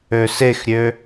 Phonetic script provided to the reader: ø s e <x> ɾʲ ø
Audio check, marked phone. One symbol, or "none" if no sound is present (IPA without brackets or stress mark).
x